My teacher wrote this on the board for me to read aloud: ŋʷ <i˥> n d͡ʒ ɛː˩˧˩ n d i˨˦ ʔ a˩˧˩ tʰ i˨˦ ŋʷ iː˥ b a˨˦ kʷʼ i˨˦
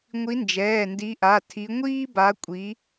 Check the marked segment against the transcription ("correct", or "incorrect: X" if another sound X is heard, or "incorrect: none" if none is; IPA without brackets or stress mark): incorrect: i˨˦